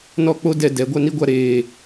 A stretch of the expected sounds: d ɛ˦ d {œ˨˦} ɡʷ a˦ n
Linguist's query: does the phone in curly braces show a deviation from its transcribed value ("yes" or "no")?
yes